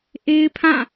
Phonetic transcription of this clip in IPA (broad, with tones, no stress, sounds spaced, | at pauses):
ʔ e˦ ɪ̯ pʰ ã˦˨